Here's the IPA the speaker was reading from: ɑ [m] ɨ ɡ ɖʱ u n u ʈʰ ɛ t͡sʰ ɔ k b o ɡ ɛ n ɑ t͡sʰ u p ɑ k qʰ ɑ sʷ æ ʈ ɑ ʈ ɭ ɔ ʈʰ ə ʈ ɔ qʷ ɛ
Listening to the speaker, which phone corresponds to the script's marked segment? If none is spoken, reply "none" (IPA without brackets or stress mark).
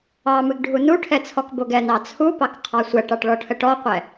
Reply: m